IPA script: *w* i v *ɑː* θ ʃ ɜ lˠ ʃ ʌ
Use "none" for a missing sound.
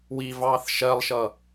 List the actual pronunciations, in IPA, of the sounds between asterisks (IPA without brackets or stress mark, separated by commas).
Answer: w, ɑː